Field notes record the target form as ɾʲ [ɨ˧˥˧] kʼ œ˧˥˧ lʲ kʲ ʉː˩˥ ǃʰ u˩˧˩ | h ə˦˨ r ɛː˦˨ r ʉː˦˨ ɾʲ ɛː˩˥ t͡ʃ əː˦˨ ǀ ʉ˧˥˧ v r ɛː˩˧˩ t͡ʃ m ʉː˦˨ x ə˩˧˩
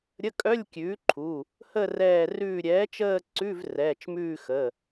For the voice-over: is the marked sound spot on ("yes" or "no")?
no